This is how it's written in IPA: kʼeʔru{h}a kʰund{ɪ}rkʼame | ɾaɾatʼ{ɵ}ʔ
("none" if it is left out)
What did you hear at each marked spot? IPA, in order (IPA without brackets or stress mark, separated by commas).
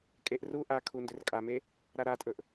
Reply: ʔ, ʏ, ɵ